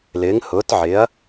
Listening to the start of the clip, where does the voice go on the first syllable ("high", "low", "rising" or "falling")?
rising